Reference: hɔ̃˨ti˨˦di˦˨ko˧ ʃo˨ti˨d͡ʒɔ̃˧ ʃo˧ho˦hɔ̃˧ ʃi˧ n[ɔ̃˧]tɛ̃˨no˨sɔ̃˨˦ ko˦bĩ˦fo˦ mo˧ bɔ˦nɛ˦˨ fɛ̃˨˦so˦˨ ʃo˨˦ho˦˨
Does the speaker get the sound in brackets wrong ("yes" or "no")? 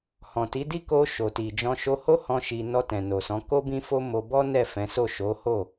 yes